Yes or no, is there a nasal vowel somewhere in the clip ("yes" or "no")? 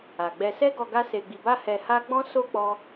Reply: yes